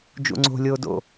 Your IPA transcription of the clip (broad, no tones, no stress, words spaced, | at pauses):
d͡ʒṵŋ͡ǀo̤ lʲoːdo̰